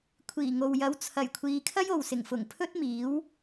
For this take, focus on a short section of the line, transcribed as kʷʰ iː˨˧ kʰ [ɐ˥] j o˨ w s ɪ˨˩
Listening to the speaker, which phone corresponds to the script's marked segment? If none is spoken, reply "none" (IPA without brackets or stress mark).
ɐ˥